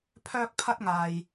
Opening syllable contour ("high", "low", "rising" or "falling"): high